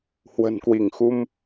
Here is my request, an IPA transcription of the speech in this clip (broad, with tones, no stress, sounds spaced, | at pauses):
h w ə̤˨˩ n k w i˧˩ ŋ x u˧ m